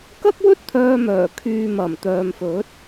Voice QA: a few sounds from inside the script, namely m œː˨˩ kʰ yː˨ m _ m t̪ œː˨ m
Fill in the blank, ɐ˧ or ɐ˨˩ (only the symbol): ɐ˨˩